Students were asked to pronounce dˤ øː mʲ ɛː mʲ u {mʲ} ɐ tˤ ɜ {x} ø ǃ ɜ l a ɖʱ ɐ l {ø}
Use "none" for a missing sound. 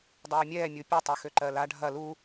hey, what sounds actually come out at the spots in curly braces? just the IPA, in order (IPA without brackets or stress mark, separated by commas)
pʲ, x, u